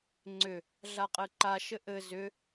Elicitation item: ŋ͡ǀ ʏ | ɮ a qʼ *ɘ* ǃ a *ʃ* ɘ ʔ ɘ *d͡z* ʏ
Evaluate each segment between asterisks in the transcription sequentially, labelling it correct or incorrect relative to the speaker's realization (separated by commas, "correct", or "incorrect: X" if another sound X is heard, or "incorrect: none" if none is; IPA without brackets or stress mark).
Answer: correct, correct, incorrect: z